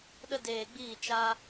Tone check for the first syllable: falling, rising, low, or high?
high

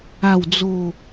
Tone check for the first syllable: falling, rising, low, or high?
falling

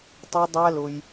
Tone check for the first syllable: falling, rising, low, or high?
high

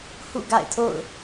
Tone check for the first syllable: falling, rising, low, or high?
falling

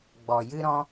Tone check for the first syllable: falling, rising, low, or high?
low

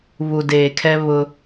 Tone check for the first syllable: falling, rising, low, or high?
low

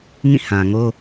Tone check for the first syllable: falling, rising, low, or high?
falling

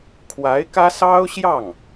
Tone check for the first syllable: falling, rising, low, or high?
rising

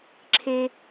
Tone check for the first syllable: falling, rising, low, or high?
high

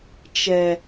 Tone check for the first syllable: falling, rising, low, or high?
low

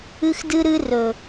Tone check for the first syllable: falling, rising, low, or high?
high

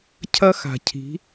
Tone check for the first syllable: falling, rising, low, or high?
high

